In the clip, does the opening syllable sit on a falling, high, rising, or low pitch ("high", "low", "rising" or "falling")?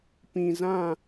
low